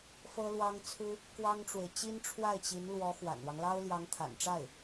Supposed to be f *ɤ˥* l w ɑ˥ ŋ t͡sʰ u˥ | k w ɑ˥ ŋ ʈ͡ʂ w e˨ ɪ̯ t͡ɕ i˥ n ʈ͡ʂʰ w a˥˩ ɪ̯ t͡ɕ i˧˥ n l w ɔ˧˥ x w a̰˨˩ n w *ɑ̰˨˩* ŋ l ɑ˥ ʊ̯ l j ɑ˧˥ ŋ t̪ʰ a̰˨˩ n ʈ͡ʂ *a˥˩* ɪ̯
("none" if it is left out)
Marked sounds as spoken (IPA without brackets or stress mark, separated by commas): ɤ˥, ɑ˦, a˥˩